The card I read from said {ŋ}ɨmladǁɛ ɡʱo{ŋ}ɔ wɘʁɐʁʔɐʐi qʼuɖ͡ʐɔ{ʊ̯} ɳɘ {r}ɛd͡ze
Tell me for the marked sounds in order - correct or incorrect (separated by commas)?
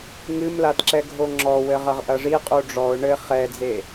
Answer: correct, incorrect, correct, incorrect